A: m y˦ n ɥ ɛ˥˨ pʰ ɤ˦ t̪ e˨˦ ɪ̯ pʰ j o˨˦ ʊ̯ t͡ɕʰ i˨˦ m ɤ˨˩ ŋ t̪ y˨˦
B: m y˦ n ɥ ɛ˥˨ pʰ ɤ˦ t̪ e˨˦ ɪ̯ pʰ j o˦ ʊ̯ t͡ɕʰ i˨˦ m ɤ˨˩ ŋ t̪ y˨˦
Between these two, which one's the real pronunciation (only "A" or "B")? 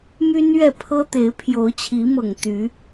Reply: A